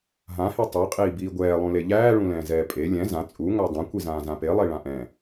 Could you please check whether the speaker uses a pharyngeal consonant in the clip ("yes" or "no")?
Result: no